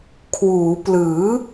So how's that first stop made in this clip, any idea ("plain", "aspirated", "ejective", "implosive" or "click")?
aspirated